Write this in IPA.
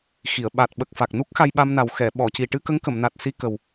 x i˨˩˨ ə̯ ɓ a˨˩ t̚ ɓ ə˨˩ k̚ f a˨˩ k̚ n u˦˥ k̚ x a˧ j ɓ a˧ m n a˨˩ w x ɛ˨˩˨ ɓ ɔ˨˩˨ c i˨˩ ʈ ɨ˧ k ə˧˥ ŋ k ə˨˩˨ m n a˨˩ t̚ s i˧ k ə˨˩ w

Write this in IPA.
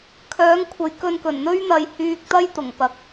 kʰ œː˨˥ ŋ kʷʰ ɐ˨ j k ɵ˧ n k ɵ˨˩ n n̪ ɵ˥ ɥ n̪ ɐ˧ j h yː˧ k̚ t̪ ɐ˥ j t̪ ʊ˨˩ ŋ p ɐ˧ k̚

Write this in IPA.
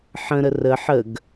ħ ə̃ ɾ ə r ə ħ ə ɡ

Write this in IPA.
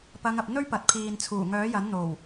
p ɐ˨˧ ŋ ɐ˨ p̚ n̪ ɵ˥ ɥ p ɐ˨ t̚ pʰ iː˨ n t͡sʰ uː˨˩ ŋ œː˨˥ j ɐ˨˥ n n̪ o˨˩ w

